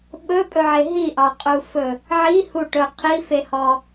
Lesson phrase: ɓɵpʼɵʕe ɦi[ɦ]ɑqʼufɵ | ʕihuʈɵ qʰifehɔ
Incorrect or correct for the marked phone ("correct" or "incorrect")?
incorrect